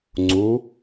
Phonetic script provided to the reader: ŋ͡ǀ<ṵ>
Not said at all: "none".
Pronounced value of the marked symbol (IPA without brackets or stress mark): u